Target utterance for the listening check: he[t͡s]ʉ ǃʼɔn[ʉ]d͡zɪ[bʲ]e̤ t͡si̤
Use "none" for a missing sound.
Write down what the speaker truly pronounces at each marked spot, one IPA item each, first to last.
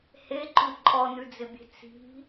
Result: ǃ, ʉ, bʲ

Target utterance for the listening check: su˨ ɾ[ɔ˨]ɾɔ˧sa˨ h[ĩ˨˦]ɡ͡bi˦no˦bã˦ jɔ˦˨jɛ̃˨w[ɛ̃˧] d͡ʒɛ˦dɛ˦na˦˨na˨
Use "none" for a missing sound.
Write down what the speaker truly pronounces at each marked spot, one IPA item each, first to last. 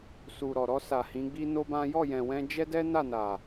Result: ɔ˨, ĩ˨˦, ɛ̃˧

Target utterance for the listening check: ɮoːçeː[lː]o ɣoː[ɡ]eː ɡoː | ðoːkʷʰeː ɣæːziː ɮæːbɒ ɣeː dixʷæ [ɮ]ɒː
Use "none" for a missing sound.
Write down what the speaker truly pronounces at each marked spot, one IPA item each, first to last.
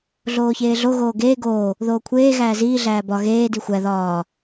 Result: ɮ, ɡ, ð

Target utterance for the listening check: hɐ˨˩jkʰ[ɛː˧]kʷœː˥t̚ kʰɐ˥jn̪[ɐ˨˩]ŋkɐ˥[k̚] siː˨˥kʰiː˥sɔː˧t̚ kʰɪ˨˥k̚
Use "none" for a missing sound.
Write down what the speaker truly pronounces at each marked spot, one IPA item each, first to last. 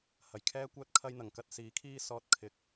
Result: ɛː˥, ɐ˨˩, t̚

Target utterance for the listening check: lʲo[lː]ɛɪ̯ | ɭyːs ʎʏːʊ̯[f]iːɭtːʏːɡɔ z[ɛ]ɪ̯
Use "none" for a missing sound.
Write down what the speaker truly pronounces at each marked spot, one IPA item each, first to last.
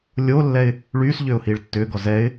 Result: lː, h, ɛ

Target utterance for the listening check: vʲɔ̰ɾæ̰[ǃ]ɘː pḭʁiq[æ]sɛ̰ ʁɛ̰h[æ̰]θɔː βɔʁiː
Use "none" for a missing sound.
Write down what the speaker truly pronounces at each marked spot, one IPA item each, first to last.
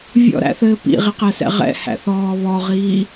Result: θ, æ, æ̰

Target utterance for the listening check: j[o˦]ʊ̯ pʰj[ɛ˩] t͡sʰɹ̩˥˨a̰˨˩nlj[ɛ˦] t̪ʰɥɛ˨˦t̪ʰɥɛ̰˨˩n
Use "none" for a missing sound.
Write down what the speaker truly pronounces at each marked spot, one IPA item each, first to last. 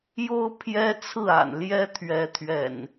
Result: o˦, ɛ˦, ɛ˦

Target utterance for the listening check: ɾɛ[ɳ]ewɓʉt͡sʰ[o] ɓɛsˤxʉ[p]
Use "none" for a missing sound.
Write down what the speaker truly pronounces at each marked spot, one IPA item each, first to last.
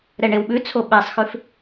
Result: ɳ, o, f

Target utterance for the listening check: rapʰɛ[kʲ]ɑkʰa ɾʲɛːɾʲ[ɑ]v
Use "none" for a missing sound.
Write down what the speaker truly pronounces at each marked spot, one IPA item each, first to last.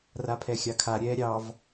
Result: xʲ, ɑ

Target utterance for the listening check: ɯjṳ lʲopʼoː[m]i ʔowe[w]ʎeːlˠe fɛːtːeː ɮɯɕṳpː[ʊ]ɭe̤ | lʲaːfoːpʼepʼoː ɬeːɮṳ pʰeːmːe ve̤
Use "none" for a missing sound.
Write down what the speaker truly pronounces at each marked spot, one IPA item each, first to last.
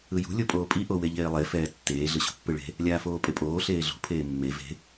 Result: pʼ, none, ɯ

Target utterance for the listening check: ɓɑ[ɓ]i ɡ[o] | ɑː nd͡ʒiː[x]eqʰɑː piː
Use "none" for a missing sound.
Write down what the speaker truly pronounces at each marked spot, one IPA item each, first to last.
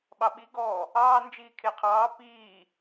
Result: ɓ, ɔ, kʰ

